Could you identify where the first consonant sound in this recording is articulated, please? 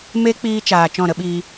labial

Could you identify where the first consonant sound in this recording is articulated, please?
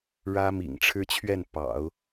retroflex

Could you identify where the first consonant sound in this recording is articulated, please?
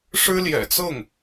retroflex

